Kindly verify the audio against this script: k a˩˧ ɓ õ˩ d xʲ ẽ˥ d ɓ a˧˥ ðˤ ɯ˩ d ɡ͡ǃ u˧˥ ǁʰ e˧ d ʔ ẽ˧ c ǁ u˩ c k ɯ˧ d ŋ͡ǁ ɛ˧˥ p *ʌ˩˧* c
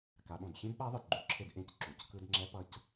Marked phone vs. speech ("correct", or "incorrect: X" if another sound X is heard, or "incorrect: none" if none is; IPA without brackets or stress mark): incorrect: ʌ˧